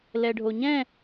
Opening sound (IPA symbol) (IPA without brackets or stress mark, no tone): l